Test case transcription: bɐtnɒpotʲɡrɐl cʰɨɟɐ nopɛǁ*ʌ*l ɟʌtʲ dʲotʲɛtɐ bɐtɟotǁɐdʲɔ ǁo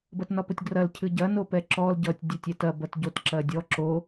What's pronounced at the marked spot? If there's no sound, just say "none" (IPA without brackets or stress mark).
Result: ɔ